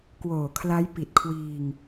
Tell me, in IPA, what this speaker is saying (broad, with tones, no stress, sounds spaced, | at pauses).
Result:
k w oː˨˩ kʰ l a˦˥ j p i˨˩ t̚ kʰ w iː˧ ŋ